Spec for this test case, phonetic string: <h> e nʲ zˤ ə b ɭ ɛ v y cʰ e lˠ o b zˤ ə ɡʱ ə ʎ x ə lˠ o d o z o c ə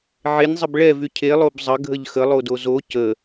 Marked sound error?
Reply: yes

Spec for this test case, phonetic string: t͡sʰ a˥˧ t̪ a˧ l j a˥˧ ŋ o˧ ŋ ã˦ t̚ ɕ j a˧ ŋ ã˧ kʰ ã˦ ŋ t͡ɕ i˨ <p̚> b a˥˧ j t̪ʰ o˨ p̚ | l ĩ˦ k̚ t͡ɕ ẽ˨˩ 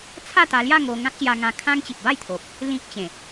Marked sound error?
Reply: no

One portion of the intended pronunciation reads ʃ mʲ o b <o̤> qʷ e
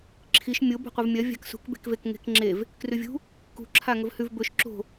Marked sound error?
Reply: no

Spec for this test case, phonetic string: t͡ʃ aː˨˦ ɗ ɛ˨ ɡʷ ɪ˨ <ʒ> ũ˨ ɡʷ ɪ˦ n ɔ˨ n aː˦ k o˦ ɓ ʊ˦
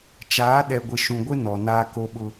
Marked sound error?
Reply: yes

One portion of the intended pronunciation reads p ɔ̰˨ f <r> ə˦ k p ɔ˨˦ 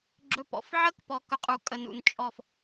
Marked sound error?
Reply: yes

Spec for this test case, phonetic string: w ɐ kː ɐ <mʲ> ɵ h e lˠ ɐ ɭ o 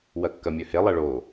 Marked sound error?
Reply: no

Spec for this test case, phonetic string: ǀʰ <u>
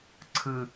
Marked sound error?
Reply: yes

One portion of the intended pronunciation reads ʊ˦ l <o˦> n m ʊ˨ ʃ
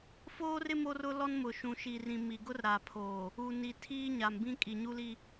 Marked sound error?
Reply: yes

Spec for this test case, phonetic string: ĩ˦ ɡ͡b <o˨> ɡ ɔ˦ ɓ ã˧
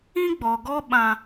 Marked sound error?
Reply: yes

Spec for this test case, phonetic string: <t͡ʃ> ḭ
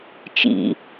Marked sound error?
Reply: no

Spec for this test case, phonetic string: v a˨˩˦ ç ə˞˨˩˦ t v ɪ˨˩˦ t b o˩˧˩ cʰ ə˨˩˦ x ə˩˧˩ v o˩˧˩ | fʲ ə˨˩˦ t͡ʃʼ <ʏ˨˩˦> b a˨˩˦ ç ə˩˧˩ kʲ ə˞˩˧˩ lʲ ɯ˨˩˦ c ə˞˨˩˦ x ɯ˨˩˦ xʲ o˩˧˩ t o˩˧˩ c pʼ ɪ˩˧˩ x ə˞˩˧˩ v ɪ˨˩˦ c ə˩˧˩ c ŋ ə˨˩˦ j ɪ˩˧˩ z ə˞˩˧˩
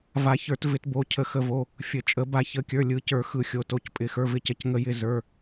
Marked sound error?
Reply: yes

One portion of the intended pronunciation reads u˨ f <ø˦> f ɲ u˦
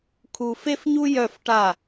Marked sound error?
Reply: yes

